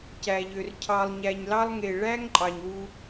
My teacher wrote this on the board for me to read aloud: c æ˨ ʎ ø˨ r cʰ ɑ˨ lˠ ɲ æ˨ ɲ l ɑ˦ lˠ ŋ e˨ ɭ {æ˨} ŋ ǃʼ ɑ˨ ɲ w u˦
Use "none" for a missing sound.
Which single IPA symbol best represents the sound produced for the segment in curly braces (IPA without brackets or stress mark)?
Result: æ˦